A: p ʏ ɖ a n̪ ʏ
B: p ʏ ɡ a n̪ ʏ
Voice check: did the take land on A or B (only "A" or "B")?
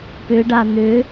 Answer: A